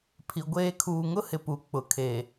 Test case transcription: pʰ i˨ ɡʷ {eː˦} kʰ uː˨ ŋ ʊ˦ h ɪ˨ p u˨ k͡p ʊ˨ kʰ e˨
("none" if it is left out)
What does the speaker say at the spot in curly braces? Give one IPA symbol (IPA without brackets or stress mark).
eː˦